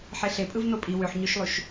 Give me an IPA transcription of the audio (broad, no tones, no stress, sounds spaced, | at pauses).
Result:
ħ e ɬ e pʼ ɯ v n o pʼ i w ø ħ ɲ ø ʃ lˠ y ʃ